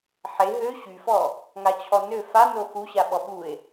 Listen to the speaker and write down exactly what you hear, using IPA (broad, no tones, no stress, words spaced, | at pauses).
ħe ɦø ɕyfɔ | ŋat͡ɕʰɔnø fa noxuɕa ɓɔɓue̯